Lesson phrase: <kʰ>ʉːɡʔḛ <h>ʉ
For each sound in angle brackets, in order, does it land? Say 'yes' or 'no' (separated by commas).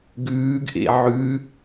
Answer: no, no